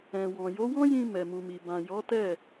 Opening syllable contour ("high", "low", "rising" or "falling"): low